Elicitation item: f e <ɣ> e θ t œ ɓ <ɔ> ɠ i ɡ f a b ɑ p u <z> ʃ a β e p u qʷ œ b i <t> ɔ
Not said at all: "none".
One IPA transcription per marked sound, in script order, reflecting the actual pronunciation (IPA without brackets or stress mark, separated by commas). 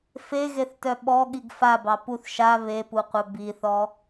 ɣ, ɔ, θ, θ